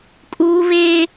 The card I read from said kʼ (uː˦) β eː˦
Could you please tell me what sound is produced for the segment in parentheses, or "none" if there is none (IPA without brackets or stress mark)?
uː˦